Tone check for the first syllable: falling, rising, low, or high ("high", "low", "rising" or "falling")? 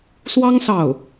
high